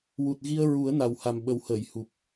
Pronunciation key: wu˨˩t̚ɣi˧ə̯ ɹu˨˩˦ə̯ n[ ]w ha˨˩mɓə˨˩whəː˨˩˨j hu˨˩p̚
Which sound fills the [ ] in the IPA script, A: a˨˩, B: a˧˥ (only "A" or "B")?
A